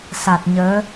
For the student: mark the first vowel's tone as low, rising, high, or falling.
low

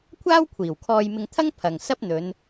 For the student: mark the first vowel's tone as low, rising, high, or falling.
high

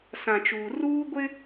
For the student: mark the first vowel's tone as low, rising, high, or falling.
low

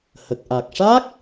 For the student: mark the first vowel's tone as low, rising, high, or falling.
low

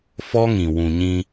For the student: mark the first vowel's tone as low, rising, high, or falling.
high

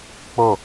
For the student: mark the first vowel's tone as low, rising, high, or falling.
falling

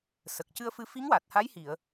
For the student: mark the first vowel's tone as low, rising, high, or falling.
low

